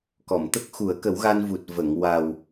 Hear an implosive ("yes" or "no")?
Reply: no